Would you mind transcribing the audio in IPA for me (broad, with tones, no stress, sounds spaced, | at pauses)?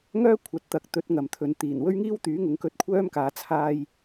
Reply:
ŋ œː˥ kʷʰ ɐ˨˥ t̚ t̪ ɐ˨˥ k̚ t̪ ɵ˨˥ t̚ ŋ ɐ˨ m t̪ʰ ɵ˨ n t̪ iː˨˩ n w ɵ˥ ɥ ŋ iː˥ w t̪ yː˨˥ ŋ ʊ˨˧ ŋ k ɵ˧ t̚ kʷʰ œː˥ m k aː˨˧ t͡sʰ aː˧ j